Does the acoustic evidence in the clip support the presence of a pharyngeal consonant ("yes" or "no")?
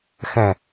no